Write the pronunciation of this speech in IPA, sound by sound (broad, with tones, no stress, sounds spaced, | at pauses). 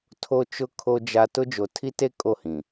tʰ o˦ t͡ʃ ʊ˦ kʰ o˦ d͡ʒ a˦ t ʊ˦ d͡ʒ o˨ tʰ i˦ t e˦ kʼ o˦˨ h ĩ˨